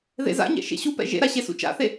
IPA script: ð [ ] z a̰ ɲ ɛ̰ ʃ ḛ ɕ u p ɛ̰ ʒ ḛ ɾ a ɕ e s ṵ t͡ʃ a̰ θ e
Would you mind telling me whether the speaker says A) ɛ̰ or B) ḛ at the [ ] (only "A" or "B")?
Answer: B